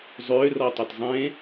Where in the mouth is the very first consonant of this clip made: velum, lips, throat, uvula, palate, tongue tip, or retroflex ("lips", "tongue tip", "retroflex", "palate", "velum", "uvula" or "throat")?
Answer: tongue tip